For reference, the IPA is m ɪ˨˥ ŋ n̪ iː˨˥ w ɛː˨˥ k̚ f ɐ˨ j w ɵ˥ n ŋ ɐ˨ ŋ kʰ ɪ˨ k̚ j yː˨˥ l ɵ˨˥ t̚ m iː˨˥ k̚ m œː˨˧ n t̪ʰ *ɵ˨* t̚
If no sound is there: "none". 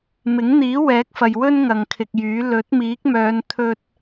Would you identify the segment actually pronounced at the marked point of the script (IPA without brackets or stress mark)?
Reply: ɵ˥